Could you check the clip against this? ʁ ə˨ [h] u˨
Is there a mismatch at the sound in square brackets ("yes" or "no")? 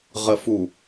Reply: yes